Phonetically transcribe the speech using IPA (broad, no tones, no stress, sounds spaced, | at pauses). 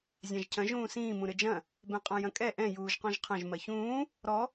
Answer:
zʲ ã ʒ cʰ ɐ̃ ʒ ũː s ĩː m ũ ɾ ɘ d͡ʒ ɐ̃ | b ɛ̃ qʼ ã j ɐ̃ kʼ ɛ ʔ ɛ̃ j uː ʒ q ɔ̃ ʒ qʰ ɐ̃ ʒ m ɐ ç ũː | ɾ ɔ